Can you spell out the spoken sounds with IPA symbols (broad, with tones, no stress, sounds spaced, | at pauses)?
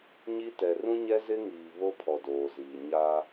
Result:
ɲ i˦ t ɛ˨ r ũ˦ ɲ ɛ˦ z ɪ˦ ŋ iː˨ β o˦ pʰ ɔ˨ d oː˨ z iː˨ ɲ a˦